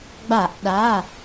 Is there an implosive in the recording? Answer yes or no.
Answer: yes